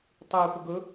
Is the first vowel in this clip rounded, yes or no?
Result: yes